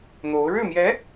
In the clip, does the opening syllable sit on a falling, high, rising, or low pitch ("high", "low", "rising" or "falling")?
rising